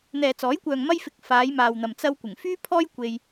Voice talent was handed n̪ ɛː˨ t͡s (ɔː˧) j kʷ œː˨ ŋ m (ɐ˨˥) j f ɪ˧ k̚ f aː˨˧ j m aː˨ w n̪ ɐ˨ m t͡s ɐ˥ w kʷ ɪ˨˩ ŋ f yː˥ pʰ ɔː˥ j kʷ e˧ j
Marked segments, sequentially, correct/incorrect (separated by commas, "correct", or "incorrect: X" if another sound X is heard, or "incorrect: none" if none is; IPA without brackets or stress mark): incorrect: ɔː˨˥, incorrect: ɐ˥